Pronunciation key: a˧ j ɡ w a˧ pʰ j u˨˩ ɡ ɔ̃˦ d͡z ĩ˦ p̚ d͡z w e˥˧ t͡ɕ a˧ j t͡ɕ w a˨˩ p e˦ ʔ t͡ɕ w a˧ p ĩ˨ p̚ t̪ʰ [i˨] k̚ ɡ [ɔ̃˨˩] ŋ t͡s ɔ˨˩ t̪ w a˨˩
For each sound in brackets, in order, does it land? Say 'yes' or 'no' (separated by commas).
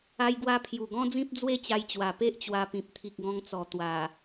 yes, no